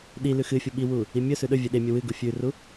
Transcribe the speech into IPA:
ɗ i l ʉ x ɨ fʲ u ɓ i w u | i mʲ ɵ s ʉ ɗ ɵ vʲ e ɗ e mʲ ɵ w ɨ ɡ u fʲ ʉ r u

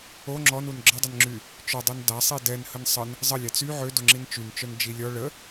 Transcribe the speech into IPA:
o ŋ͡ǁ ɔ n u n ɡ͡ǁ ə dˤ ə n ŋ͡ǁ y | t͡ʃ œ dˤ y n d a sˤ i d ɛ n h ə n sˤ ə n | zˤ ə lʲ a t͡s y ʕ ø d o ŋ͡ǁ i n t͡ʃ y n t͡ʃ œ n d͡ʒ i lʲ ɔ ɭ ə

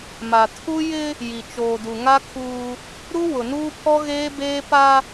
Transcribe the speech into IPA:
m a˨ tʰ u˦ j ɪ˦ | j i˨ t͡ʃ oː˨ d u˨ ŋ a˦ kʰ uː˦ | ɾ u˦ w ʊ˨ n uː˦ pʰ ɔ˦ ɣ eː˦ b eː˦ p a˦

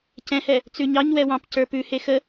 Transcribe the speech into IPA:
c ɛ̃ h ɛ | t͡s ʉ ɲ ɑ ɲ w ɛ w ɑ̃ p c ə˞ p ʉ h e x ə

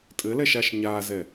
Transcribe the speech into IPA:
tʼ ɘ l ɛ ʃ a ʃ ɲ a z ɛ

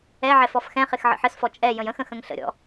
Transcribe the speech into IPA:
ɛ ʕ ɛ f ɔ f x ɛ̃ χ ɪ x ʕ ə̰ ħ ə s f ɔ t͡ʃʼ ɛ j ə̃ j ə̃ x ə̃ x ə̃ ŋ ɬ ə̰ ɾʲ ɔ̰

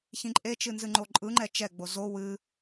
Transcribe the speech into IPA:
ç ĩ ǃʼ e t͡ʃ ɨ n z ɨ ŋ͡ǃ o ǃʼ ɯ ŋ͡ǃ ɛ t͡ʃ ɛ ɡ͡b o z o w ɨ

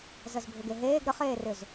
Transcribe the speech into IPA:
z ə z bʱ ʏ ɡ e ɦ eː ɡ ɾ ə χ eː r ʏ z

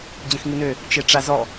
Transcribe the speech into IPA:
d͡ʑ ə̃ x ŋ i n ø | t͡ʃ e ʈ͡ʂ a z ɔ

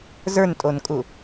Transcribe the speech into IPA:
z ə˞ n tʼ o n kʼ u

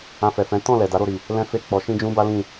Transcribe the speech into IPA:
ã˧ f ɛ˨ f ɛ̃˨˦ t ɔ̃˦˨ l ɛ˨ d a˨˦ ɾ o˧ ɾ i˨ | l ɛ̃˦ f e˦˨ k͡p ɔ˨˦ ʃ ĩ˦ d͡ʒ ũ˦ b a˦ l ĩ˦˨

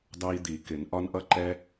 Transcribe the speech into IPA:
d ɑ˦ i̯ d̪ i˨˩˦ k ɪ˨˩˦ n ʔ ɒ˦ n ʔ ʌ˦ ǃ ɛ˦

